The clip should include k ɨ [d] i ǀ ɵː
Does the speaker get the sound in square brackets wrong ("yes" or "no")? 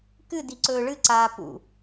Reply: no